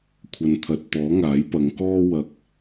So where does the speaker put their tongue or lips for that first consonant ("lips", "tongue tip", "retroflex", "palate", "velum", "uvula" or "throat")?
velum